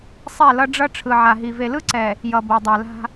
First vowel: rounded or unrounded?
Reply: unrounded